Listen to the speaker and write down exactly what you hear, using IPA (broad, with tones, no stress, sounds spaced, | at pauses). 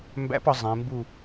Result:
m b æ̰˧˥ p ɒ˩˧ zˤ ẽ˩˧ m b u˥˨